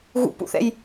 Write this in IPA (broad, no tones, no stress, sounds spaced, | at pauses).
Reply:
ɣ ṵ p ṵ θ ɛ̰ j